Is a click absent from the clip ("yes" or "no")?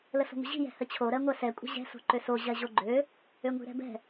no